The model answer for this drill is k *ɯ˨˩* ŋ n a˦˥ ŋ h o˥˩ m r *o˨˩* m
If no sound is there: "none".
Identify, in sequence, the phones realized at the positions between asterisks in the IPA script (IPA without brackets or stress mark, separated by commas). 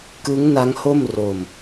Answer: ɯ˦˥, o˧